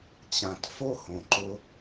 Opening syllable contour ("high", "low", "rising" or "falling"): low